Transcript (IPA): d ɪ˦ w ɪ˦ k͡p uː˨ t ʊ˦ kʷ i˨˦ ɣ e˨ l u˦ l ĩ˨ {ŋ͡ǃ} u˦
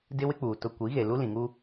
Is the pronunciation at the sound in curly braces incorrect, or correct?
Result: incorrect